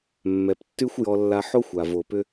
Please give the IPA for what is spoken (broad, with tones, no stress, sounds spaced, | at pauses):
mː ɛ˩ p tː y˥ xʷ j ɔ˧ lː a˧ ħ o˥ xʷ a˩ v o˩ p ʏ˧